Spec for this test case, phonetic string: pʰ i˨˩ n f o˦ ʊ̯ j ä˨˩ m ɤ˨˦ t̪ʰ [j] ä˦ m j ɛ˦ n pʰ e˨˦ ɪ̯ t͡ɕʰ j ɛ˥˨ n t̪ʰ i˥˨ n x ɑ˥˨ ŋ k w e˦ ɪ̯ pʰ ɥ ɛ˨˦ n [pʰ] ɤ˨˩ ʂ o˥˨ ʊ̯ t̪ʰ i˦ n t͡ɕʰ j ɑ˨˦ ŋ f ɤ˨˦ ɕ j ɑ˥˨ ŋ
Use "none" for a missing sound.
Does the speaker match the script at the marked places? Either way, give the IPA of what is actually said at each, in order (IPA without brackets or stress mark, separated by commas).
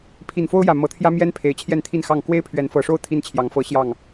j, f